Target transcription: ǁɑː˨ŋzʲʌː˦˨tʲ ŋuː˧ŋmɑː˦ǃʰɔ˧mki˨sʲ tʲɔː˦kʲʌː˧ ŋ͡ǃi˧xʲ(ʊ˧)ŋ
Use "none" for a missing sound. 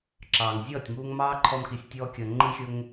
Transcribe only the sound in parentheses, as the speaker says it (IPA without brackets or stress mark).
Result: ʊ˧